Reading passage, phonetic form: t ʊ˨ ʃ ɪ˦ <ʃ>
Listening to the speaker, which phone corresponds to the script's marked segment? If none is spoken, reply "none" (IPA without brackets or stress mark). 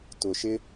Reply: none